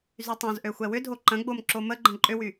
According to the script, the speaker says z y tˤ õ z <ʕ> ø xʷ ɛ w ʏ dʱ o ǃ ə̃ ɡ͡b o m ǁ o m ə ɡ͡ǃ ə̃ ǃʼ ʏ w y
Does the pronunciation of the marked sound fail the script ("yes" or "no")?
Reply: yes